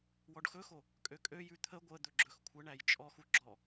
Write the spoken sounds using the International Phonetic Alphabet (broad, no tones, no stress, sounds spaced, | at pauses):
w ɔ ɖ x ɵ x o | kʼ ø kʼ ø j ʉ t̪ʰ ə ɡʷ ə d̪ ɵ ɡ͡ǁ ɵ x kʷʰ ə ɳ æ j t͡ʃʼ ɔ x u ɡ͡ǁ ɔ